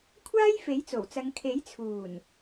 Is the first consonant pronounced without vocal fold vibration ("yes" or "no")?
yes